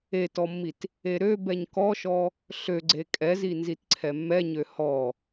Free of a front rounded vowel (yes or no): no